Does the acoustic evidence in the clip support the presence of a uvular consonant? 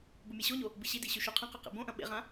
yes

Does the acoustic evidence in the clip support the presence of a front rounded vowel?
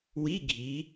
no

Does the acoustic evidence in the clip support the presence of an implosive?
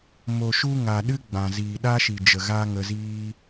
yes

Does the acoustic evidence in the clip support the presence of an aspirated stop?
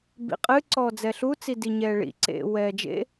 no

